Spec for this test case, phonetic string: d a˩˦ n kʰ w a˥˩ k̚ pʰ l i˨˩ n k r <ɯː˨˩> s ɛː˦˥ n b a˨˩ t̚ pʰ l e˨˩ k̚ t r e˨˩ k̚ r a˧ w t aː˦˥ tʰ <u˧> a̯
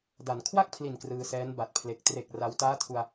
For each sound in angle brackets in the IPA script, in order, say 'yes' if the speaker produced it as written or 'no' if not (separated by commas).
no, yes